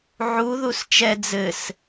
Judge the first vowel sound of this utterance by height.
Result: high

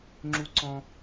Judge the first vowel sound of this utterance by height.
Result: high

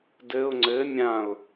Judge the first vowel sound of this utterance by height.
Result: mid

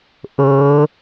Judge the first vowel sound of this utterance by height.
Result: mid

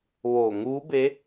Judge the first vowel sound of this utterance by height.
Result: mid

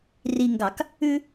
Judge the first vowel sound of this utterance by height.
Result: high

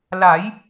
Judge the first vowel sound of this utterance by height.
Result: low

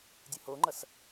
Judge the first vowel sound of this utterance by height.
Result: high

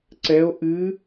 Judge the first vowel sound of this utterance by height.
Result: mid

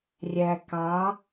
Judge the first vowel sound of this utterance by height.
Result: low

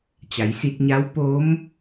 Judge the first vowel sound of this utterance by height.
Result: low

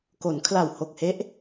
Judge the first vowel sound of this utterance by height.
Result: mid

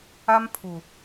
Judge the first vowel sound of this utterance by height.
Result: low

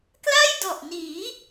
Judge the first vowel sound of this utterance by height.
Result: low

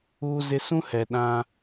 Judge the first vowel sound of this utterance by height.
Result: high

